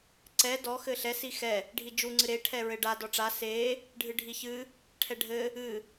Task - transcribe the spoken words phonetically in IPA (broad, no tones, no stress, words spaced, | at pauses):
ǀɛ dɔ xɘɬɛ sixɛ | ɖʱid͡ʒu ŋ͡ǀɨɾe ʈʰɛɹɘɖa dɔʈ͡ʂa se | ɖʱɨɖʱiçɨ | ʈʰɛɖʱɘ | ɨ